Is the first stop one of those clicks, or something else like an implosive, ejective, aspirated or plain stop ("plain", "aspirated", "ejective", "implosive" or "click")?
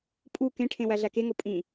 ejective